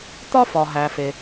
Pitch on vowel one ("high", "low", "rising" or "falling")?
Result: high